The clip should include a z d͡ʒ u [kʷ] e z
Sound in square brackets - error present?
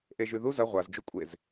yes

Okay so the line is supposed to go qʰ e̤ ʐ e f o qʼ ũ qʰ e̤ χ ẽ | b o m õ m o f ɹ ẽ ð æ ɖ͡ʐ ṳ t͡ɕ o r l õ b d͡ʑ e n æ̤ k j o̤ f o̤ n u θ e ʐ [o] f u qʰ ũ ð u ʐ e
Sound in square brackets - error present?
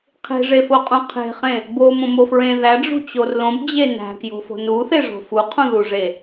yes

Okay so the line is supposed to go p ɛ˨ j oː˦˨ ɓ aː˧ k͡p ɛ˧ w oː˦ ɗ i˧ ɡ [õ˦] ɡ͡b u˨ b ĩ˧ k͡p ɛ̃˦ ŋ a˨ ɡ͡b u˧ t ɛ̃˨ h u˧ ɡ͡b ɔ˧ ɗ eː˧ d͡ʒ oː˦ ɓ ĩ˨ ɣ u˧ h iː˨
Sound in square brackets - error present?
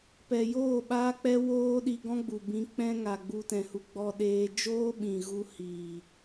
yes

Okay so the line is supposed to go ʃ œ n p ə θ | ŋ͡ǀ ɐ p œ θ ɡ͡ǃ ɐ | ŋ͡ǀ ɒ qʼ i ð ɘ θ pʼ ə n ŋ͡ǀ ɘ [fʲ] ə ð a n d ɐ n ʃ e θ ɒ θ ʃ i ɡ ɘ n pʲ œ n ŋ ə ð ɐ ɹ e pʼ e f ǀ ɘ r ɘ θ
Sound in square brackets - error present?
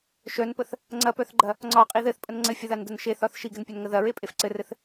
no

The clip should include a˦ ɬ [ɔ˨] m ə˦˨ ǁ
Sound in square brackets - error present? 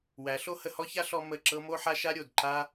yes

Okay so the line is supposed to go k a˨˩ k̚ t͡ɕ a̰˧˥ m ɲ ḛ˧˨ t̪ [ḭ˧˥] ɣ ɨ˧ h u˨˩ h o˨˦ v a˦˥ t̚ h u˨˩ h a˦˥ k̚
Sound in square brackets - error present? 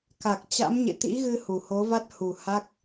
no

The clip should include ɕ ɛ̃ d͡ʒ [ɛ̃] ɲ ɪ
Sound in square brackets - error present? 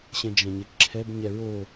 no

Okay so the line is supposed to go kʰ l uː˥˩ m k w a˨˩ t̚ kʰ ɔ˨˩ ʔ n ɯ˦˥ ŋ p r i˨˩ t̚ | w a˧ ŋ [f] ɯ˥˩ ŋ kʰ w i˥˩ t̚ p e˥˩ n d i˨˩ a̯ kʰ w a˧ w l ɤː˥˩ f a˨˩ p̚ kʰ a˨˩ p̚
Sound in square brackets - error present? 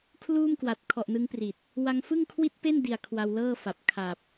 no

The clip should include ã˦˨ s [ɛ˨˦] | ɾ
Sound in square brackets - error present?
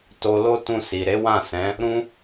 yes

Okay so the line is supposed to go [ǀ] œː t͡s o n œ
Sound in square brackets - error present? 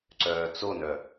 no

